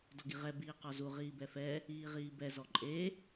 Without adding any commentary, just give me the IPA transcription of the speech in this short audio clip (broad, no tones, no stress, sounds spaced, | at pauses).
d ɔ ɡ i ʁ ɛ b iː q ɔ z u ʁ iː b ɛ f ɛ | iː ʁ iː b ɛ z ɔ ǃʼ e